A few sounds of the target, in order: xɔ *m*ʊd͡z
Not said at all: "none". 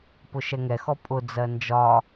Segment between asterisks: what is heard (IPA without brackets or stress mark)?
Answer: pʼ